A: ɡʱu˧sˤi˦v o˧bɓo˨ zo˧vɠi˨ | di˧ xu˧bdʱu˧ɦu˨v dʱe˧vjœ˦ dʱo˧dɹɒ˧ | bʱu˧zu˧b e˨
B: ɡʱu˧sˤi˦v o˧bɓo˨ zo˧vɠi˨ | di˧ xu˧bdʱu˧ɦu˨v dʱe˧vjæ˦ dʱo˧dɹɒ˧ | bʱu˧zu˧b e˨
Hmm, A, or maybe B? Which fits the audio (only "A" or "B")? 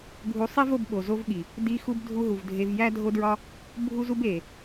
B